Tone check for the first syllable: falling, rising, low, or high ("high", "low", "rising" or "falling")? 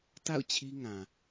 falling